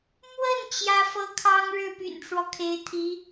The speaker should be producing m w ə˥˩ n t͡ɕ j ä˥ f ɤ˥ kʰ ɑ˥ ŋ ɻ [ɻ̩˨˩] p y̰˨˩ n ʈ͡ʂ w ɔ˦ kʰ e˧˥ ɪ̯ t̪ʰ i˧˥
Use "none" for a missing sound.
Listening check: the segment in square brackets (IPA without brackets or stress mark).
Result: ɻ̩˥˩